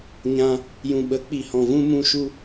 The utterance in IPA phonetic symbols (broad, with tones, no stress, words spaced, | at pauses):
ɲã˧ | jũ˨ɓə˨˦ k͡pi˨hɔ̃˨vũ˧ mũ˦ʃu˦